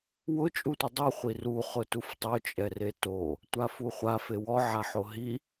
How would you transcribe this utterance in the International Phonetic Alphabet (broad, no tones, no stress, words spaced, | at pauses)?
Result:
wʊ t͡ʃʼutʷidˤu χʷiru χʊtuftˤo t͡ʃʼɛreto | tʷafuχʷa fewɔ ʕaħoɦi